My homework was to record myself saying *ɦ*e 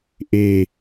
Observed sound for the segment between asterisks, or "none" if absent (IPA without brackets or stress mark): ʔ